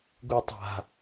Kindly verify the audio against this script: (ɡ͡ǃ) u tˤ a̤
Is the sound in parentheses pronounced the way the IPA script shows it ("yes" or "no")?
no